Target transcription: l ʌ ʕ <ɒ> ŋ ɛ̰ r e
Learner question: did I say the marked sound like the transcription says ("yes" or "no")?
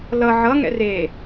no